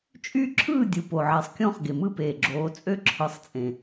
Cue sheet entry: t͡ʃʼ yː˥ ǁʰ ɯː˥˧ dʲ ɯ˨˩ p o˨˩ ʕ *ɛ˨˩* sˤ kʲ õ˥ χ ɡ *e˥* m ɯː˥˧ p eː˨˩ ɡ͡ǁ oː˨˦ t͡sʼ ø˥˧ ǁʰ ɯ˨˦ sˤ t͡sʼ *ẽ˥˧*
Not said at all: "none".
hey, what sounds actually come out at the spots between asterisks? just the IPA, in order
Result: e˨˩, e˨˩, ẽ˨˩

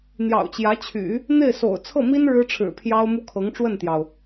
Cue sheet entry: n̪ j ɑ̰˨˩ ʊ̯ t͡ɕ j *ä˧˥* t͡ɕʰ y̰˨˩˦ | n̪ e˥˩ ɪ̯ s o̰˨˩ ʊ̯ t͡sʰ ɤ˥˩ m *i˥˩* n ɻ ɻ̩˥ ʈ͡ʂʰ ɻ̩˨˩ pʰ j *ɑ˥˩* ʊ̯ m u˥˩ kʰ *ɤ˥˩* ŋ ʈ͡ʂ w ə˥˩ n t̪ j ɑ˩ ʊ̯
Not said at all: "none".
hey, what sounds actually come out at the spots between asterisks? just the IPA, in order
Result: ä˧˥, i˥, ɑ˥, ɤ˧˥

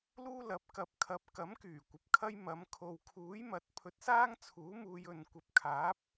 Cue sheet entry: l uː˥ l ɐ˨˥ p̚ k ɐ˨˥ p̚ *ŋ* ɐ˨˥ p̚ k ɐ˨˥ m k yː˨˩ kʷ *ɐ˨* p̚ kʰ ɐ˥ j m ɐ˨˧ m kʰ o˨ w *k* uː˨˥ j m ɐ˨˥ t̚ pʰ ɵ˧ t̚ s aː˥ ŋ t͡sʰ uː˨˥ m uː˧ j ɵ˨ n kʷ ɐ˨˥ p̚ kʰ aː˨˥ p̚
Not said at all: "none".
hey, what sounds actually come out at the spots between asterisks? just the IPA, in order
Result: kʰ, ɐ˨, kʰ

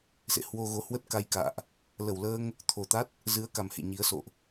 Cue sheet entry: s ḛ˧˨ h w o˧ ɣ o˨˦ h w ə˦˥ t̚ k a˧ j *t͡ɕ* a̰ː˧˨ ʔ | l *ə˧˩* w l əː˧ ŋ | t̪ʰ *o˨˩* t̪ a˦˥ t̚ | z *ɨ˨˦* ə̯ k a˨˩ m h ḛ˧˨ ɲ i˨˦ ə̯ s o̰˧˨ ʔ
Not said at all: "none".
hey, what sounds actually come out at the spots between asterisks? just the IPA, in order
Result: k, ə˧˩, o˨˩, ɨ˨˦

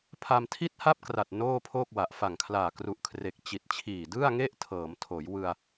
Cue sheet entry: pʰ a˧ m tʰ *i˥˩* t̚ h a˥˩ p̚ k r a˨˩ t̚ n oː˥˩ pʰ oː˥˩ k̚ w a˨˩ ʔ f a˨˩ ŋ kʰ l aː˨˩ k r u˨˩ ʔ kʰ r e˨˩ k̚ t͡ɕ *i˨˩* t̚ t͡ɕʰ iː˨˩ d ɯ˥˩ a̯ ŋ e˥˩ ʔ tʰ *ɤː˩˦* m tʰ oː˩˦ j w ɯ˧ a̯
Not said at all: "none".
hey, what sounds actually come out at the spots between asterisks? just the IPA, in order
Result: i˥˩, i˨˩, ɤː˩˦

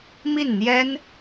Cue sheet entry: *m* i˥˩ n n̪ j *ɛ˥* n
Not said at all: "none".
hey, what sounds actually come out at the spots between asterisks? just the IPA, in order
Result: m, ɛ˥

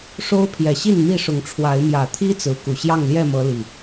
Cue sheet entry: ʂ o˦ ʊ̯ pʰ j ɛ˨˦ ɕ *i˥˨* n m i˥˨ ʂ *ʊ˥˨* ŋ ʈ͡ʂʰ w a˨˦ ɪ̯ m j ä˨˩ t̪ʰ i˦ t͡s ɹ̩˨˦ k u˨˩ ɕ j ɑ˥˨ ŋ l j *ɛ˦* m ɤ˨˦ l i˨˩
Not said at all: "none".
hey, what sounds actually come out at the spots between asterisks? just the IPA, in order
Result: i˥˨, ʊ˨˦, ɛ˥˨

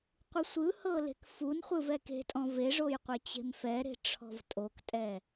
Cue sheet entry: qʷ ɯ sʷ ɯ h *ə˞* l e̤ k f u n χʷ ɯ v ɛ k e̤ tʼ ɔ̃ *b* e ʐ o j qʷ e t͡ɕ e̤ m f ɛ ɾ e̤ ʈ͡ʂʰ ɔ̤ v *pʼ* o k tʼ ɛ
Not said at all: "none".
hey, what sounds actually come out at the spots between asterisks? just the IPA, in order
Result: ɤ, v, tʼ

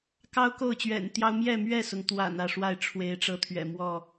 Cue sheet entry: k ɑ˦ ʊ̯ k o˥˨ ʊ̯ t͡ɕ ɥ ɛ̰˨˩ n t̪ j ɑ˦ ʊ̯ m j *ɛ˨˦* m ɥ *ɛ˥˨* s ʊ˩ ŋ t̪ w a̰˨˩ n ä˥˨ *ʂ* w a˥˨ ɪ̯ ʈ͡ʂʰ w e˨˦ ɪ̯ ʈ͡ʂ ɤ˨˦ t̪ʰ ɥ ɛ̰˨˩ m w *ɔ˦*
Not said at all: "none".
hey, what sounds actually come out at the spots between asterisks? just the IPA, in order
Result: ɛ˥˨, ɛ˥˨, ʂ, ɔ˥˨

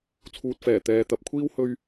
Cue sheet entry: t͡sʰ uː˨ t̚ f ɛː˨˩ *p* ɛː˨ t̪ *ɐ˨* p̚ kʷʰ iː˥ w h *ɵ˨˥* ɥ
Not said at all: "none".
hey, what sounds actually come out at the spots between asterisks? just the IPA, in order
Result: t̪, ɐ˨, ɵ˥

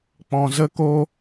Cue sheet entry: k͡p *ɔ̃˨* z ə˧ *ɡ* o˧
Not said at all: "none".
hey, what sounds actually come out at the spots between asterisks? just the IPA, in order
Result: ɔ̃˨, k

